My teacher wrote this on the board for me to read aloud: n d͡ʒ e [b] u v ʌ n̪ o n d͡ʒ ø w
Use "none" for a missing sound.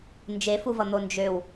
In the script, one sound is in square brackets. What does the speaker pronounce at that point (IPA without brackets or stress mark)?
f